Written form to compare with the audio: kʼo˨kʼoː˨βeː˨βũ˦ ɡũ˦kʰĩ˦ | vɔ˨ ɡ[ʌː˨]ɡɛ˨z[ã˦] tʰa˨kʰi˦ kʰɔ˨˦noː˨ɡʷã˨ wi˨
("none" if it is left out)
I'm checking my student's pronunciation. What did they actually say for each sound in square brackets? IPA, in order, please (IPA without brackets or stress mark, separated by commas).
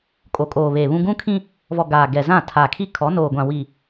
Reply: aː˨, ã˦˨